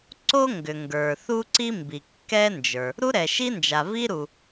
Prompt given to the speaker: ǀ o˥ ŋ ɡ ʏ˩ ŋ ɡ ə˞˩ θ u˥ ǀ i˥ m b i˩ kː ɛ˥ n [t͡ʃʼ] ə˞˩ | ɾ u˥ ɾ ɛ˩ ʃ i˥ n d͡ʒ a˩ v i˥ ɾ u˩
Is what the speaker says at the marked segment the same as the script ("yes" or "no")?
no